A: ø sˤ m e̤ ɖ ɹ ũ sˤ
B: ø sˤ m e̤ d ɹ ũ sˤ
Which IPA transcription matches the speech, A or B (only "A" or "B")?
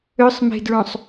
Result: B